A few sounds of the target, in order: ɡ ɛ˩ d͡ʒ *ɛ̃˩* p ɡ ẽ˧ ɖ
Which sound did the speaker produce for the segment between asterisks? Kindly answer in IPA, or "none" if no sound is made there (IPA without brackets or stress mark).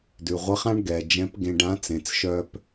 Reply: ɛ̃˧˥